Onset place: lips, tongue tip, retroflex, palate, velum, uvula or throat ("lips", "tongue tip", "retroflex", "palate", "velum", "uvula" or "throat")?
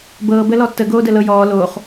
lips